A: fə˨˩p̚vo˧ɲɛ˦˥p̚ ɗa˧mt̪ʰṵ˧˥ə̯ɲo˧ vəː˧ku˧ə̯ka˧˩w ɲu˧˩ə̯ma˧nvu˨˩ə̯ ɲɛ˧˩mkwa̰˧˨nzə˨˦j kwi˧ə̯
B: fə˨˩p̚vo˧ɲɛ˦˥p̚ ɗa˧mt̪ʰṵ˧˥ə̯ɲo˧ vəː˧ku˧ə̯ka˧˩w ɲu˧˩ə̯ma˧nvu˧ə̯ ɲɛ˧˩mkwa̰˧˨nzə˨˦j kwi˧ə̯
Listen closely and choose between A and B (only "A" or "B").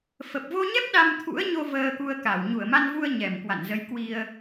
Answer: B